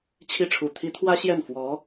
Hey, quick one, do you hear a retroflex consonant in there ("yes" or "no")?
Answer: yes